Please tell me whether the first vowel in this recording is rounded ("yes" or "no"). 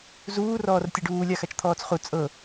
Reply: yes